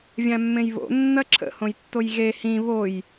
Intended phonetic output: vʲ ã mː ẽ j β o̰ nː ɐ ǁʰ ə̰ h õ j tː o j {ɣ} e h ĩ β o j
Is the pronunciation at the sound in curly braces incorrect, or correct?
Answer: correct